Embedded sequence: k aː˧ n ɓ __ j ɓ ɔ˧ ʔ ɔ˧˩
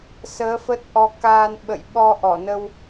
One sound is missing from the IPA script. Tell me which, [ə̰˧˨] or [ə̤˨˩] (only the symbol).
ə̰˧˨